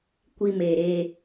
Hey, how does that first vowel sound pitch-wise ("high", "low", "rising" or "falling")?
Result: high